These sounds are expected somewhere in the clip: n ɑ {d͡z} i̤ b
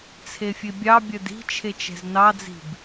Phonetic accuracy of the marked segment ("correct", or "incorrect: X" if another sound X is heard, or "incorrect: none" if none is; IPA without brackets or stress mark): correct